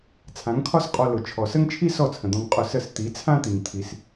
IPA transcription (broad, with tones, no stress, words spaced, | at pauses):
t͡sʰã˨˦ŋkʰɒ˦sqʼɔ˧ lʊ˨ t͡ʃʰɔ˨sə˦ŋt͡ʃʰi˦ sɔ˦˨t͡sʰə̃˨d̪ɔ̃˧ŋ qʼʊ˧sə˦˨s t̪i˨˦ t͡sʰã˦t̪i˨ŋ t̪ʰi˧s